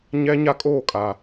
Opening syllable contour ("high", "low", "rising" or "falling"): high